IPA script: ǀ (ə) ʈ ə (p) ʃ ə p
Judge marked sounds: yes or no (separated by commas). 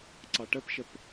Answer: no, yes